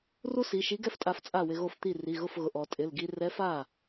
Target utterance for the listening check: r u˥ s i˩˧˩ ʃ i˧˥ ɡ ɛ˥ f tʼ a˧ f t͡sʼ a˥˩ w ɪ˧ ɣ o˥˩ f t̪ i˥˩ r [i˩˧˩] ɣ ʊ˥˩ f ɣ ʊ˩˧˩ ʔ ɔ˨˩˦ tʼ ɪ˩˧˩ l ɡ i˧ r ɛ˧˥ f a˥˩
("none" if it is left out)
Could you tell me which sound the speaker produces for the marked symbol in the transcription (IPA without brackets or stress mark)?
i˩˧˩